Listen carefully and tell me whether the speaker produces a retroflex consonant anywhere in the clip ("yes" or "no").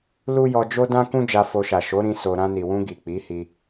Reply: no